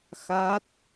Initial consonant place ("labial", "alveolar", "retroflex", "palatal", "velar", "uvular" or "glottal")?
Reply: velar